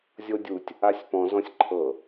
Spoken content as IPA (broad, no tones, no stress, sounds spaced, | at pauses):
zʲ o dʲ u tʲ | a sʲ p ɔ̃ z ɔ̃ sʲ ǃʰ ɤ